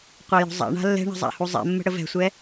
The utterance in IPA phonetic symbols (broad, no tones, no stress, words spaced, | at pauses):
qʷajo̤zˤa̰ɳa̤ lːɛ̤ɳə̤ zˤa̰huzˤɛ̰mːə̤ ɽəvɛ̤sʷɛ